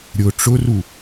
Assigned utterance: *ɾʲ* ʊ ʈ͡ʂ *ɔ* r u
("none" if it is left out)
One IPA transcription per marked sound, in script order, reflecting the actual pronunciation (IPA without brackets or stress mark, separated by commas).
ɾʲ, ʊ